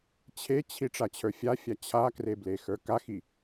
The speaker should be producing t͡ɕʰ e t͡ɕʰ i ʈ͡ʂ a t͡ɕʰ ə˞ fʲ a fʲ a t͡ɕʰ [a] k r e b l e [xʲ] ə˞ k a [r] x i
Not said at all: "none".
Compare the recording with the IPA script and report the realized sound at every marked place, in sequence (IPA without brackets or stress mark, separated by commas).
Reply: a, x, none